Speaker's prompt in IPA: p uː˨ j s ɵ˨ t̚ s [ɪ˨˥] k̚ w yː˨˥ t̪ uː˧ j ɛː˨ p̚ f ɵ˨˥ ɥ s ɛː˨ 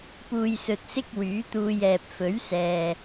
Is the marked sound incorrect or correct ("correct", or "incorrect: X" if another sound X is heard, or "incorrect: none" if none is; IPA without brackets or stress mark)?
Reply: incorrect: ɪ˧